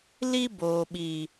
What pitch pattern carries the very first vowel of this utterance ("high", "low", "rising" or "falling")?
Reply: high